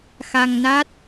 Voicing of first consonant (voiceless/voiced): voiceless